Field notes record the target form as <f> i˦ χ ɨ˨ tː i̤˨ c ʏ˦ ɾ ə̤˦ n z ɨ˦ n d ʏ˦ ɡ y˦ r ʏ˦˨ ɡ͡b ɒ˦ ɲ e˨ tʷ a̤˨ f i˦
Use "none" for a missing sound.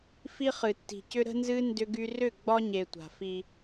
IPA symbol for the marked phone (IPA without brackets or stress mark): f